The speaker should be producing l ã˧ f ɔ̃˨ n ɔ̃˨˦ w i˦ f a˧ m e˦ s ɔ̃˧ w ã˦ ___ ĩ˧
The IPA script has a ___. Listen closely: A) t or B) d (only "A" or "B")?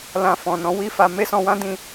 B